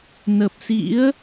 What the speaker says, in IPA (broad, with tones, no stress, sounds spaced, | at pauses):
n ə˨˩ p̚ s ḭ˧˥ ə̯